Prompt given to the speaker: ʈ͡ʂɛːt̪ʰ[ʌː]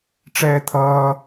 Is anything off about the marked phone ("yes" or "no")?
no